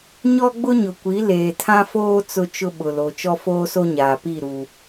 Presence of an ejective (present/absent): absent